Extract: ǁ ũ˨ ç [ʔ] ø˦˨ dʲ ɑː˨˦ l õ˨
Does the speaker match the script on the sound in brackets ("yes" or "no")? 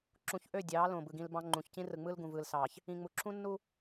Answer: yes